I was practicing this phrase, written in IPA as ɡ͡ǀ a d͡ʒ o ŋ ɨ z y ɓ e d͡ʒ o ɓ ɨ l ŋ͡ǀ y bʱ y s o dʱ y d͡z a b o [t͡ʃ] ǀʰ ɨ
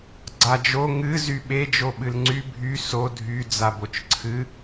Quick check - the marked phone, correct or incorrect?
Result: correct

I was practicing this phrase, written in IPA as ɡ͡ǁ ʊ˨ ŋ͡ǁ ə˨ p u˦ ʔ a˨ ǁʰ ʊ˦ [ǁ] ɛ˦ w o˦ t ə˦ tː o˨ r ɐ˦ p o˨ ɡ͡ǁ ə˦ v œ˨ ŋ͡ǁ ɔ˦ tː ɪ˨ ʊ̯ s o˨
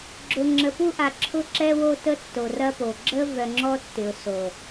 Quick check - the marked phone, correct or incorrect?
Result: correct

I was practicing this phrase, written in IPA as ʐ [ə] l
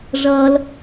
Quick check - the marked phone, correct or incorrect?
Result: incorrect: ʌ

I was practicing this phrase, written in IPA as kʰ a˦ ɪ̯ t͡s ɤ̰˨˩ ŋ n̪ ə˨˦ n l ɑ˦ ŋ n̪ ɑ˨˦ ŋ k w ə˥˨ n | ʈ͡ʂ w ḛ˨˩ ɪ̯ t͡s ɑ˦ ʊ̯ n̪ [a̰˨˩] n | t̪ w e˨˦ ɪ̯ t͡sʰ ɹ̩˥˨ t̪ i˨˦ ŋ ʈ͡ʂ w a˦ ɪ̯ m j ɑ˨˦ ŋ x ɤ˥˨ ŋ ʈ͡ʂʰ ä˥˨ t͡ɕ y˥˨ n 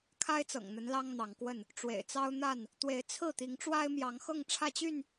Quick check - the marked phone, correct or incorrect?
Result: incorrect: a˥˨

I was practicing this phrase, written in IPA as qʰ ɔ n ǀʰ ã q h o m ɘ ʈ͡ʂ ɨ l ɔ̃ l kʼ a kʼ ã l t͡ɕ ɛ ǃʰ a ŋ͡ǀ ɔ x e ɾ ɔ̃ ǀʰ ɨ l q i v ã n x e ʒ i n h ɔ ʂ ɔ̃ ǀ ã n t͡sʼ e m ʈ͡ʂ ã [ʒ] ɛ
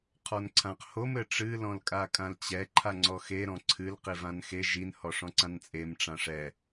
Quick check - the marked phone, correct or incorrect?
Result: incorrect: ʂ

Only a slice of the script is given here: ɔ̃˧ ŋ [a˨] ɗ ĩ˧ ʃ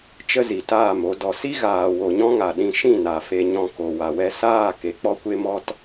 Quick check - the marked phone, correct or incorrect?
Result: correct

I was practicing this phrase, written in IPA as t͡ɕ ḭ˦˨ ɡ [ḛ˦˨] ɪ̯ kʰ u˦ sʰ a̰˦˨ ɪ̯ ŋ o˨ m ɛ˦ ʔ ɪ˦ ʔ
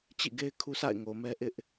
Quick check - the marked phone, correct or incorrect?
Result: incorrect: e˦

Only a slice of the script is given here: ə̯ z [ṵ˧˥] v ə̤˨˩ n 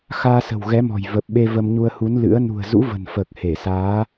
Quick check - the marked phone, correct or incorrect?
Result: correct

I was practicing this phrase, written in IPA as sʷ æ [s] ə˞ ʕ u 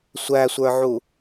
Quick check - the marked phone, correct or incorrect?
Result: incorrect: sʷ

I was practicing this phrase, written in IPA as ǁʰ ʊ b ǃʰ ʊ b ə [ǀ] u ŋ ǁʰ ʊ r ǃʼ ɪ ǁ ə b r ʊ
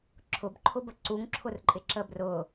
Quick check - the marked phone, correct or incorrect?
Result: correct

